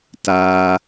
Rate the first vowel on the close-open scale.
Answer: open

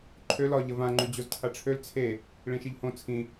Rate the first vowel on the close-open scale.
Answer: mid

